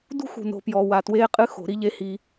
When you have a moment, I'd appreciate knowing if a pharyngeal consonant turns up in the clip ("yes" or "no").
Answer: no